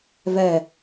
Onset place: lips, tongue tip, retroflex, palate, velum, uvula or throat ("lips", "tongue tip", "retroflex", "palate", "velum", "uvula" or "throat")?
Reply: lips